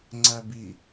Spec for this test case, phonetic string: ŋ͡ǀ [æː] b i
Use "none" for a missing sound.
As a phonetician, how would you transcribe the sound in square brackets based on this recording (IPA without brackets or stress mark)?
æ